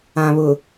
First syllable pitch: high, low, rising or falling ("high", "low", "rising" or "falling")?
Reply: low